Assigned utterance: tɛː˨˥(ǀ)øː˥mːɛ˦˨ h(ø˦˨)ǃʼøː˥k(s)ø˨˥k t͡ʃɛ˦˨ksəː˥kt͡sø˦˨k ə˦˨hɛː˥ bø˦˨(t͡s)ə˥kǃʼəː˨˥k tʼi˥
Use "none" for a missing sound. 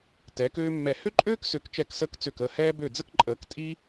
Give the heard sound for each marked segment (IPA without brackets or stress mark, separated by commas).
k, ø˥, s, d͡z